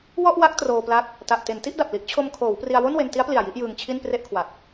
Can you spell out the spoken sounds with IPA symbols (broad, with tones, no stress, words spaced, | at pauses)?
wɔ˥˩ʔ wa˦˥k̚ troː˧pla˦˥k̚ | ta˨˩ʔ te˩˦nti˥˩ʔda˨˩p̚ li˦˥ʔt͡ɕʰo˧m kʰoː˩˦wpri˧a̯wo˥˩n we˧nti˦˥a̯pli˨˩a̯ ji˥˩ʔjɯː˧ŋt͡ɕʰi˥˩n pre˥˩ʔkʰwa˨˩k̚